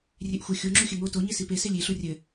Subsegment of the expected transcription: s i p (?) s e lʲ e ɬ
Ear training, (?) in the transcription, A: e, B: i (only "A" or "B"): A